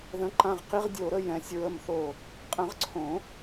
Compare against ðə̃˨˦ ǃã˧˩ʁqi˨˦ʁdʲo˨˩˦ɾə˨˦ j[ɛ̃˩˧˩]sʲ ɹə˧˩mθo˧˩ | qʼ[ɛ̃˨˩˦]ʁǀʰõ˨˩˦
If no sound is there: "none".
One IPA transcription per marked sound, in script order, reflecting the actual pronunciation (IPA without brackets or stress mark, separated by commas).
ɛ̃˩˧˩, ə̃˨˩˦